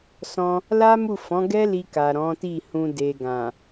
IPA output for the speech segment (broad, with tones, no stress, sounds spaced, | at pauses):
s ɔ̃˧ | l a˦ m u˦˨ f ɔ̃˨˦ ɡ ɛ˦ l i˧ k a˨ ɾ ɔ̃˨˦ t i˦˨ h ũ˧ d e˨ ɡ ã˨